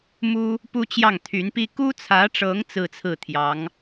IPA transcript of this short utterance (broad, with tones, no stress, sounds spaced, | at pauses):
m u˥ | p u˥ t͡ɕ j ɑ˥˩ ŋ t̪ʰ y˧˥ n p i˥ k u˥ t͡sʰ ä˧˥ ʈ͡ʂ ɤ˧˥ ŋ t͡s ɹ̩˥˧ t͡sʰ ɹ̩˥˩ t̪ʰ j ɑ˧˥ ŋ